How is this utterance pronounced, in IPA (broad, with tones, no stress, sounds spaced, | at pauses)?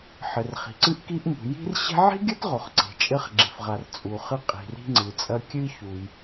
ħ ɘ˩ r χ i̤˩ ǀ ɨ˥ ʔ k i˥ ʔ m ṳ˩ j i̤˥ r ɕ e̤˥ ʕ i̤˥ ɡʲ ɐ˥ t ʁ o˩ χ ǀ e̤˩ t͡ʃʼ ɘ˥ χ ɡ͡ǁ e̤˩ f ʁ a˩ r t͡sʼ u˩ χ ɨ˥ qʼ i̤˩ r i̤˥ ŋ͡ǀ ɨ˩ t͡sʼ ɐ˥ kʲ ɨ˥ ç u˩ j